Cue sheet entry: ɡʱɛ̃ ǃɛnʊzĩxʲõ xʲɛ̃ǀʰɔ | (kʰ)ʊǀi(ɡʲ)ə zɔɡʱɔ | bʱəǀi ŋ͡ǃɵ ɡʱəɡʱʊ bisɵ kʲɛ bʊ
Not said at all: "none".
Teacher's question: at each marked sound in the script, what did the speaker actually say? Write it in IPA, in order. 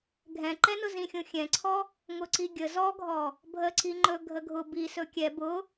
ŋ, ɡʲ

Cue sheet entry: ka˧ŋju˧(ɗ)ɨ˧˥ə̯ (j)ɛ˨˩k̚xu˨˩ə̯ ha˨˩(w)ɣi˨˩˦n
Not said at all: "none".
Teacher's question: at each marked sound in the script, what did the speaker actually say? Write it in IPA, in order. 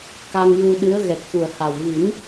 ɗ, ɣ, w

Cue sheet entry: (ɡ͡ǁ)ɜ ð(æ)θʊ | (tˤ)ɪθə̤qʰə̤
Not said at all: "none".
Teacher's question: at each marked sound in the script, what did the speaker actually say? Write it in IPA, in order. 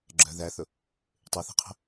ɡ͡ǁ, æ, tˤ

